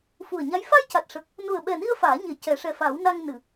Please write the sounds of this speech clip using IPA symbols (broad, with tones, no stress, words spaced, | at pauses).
fu˨˩ə̯ɲa˧˥j fa˧jca˨˩t̚ʂə˨˩k̚ | nu˨˩ə̯ɓɛ˨˩ni˧ə̯ faː˨˩˦ɲe˨˩˦ cɛ˨˩˦ʂɛ˨˩fa˨˩˦w na˧ŋ nɨ˨˩˨